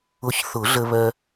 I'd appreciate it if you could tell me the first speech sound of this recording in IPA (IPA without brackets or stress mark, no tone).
ʊ